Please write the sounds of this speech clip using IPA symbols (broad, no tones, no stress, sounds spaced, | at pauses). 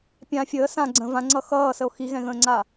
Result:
pʲ ã fʲ əː s ã ɡ͡ǀ ə̃ v ã ŋ͡ǀ ʌ x ʌː s ə o̯ x i ɣ ɛ̃ ɣ ə̃ː ŋ͡ǀ a